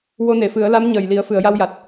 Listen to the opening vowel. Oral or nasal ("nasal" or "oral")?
oral